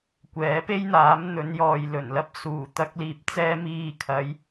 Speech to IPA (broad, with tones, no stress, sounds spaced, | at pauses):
kʷ ɛː˨˥ p e˥ j n̪ aː˨˥ m n̪ ɵ˨˧ n j ɔː˨ j l ɵ˨˩ n l ɐ˥ p̚ s uː˨˩ t̪ ɐ˧ k̚ l iː˨ p̚ t͡s ɛː˧ m iː˨ kʰ ɐ˨˧ j